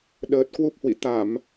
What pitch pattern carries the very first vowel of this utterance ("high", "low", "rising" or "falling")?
low